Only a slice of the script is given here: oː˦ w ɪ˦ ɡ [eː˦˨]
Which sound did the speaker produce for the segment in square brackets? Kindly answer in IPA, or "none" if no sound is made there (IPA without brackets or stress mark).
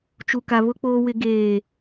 eː˦˨